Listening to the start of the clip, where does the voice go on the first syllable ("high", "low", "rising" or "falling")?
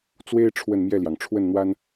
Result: high